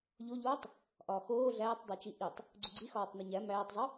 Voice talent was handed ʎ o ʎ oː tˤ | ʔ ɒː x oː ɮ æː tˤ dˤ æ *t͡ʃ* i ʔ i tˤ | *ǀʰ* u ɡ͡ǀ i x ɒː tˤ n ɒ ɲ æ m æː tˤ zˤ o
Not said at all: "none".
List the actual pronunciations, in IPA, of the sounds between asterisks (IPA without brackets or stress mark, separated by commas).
t͡ʃ, ɡ͡ǀ